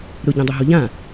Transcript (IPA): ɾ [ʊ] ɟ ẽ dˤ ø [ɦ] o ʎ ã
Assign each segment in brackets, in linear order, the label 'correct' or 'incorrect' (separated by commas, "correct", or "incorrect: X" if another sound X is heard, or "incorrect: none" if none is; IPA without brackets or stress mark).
correct, correct